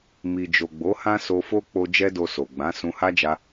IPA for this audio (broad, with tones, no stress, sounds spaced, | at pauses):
m i˨ d͡ʒ o˨ ɡ͡b o˨˦ h ã˦ s o˧ f o˦ k͡p o˧ d͡ʒ ɛ˦ d o˧ s o˨ ɡ͡b ã˨˦ s ũ˧ h a˦ d͡ʒ a˧